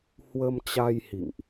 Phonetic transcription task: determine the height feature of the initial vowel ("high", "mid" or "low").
mid